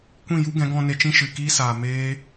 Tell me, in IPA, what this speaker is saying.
kʷ ĩ˦˨ j u˦ ɡ ɛ̃˨˦ ɡ ɔ̃˧ n e˧ t͡ʃ ĩ˦ ʃ ɨ˨ k iː˦ s aː˨ m eː˦

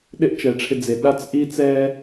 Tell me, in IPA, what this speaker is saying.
ɗ ɪ˥ ʔ t͡ʃ ɛ˩ ʈ͡ʂʰ ɪ˧ d͡z e˩ ɗ a˥ t͡s ʔ i˥ t͡s ɛ˥

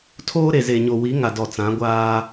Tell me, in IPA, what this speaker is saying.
tʰ oː˦ ɾ e˨ z e˨ ɲ o˨ w i˨˦ ŋ a˨ d ɔ˨ t͡s ã˨˦ ɡʷ aː˦

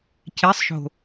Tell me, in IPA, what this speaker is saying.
c e sˤ ʃ o̤

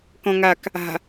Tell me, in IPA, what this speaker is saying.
k ɔ̃ ŋ a k | a̤

